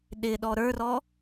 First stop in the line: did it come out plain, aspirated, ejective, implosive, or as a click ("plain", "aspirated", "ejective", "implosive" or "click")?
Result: implosive